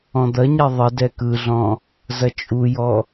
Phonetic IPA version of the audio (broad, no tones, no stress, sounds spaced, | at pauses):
ɔ̃ d̪ ɐ ɲ ɛ ðˤ ə d ɛ k ɯ ɮ ɔ̃ | z ɐ t͡ʃʼ u j ɔ